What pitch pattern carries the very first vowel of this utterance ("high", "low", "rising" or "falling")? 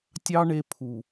high